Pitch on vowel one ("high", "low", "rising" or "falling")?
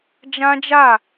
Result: high